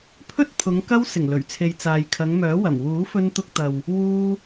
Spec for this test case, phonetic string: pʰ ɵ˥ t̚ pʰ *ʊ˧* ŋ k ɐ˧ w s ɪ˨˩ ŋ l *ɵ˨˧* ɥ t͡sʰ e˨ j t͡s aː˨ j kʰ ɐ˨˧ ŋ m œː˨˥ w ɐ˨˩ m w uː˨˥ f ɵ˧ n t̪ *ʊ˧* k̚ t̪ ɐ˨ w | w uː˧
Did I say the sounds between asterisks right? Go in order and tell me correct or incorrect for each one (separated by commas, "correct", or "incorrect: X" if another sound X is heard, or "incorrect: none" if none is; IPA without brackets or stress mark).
incorrect: ʊ˨˧, incorrect: ɵ˨˩, correct